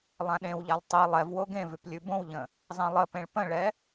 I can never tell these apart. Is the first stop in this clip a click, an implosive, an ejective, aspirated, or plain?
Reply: implosive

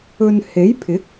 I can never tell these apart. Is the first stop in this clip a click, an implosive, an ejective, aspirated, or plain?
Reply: aspirated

